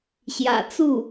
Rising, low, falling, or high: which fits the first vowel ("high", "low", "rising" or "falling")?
low